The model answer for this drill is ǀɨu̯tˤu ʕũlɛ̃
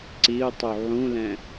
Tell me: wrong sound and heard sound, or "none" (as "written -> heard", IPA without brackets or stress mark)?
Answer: ɨ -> i